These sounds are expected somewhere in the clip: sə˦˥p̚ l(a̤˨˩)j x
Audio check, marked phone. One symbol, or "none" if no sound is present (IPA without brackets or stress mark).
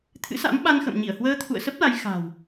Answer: a˨˦